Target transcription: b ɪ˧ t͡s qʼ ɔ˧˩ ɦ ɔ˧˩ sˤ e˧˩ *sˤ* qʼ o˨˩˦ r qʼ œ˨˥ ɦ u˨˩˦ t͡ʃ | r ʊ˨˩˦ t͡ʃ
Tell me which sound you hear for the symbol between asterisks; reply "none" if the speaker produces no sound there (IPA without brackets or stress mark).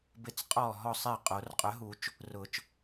none